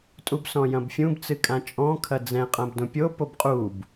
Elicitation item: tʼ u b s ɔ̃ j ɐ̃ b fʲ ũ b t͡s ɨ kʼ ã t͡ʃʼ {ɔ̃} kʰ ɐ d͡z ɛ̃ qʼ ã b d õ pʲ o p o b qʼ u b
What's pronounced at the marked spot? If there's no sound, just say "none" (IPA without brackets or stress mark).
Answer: ɔ̃